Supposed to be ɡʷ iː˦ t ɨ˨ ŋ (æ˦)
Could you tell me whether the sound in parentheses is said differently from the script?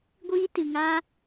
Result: yes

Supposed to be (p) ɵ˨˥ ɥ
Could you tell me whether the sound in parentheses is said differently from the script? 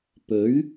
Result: no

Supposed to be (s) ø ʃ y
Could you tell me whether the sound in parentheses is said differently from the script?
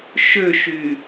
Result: yes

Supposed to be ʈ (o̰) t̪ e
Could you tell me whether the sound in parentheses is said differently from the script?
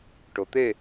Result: yes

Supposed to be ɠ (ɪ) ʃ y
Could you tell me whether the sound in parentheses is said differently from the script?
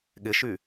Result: no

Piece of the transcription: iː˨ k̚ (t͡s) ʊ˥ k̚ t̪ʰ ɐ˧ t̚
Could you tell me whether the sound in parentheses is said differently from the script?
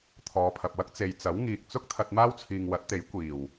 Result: no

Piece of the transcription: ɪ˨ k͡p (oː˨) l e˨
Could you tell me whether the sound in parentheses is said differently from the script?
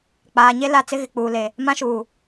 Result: yes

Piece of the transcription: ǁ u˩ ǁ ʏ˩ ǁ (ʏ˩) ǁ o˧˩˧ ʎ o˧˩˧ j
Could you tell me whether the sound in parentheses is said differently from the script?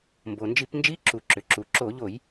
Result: yes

